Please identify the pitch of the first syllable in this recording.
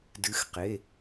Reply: rising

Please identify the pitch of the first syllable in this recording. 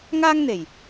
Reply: high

